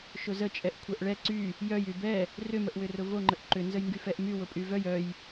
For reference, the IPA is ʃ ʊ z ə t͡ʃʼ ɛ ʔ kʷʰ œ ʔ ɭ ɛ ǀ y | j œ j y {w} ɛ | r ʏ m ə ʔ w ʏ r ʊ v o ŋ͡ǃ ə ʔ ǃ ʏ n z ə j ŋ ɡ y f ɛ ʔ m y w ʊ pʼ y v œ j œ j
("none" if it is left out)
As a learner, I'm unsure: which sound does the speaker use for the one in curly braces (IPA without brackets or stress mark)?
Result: b